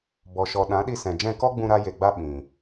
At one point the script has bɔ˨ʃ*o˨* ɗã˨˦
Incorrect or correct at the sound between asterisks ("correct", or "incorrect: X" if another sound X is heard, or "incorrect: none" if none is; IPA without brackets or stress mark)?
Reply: incorrect: ɔ˨